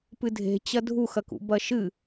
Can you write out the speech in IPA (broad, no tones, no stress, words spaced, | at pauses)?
pɨdʱe̤t͡ɕɐ dʱuxɐkṵ bɐʃɨ